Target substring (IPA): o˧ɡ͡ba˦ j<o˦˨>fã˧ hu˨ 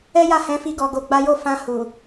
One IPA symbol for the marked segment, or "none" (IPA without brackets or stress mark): o˦˨